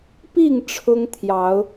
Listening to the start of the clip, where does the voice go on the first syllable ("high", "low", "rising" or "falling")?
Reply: falling